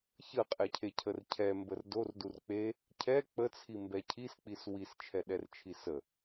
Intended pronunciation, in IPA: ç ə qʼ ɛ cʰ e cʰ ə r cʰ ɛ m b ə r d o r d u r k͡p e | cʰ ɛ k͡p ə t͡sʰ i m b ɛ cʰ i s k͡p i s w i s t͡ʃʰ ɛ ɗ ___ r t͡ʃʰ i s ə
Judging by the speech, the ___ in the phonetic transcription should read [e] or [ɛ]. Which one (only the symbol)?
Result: ɛ